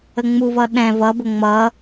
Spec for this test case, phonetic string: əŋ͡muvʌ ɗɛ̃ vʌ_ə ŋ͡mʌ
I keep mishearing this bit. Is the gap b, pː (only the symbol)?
b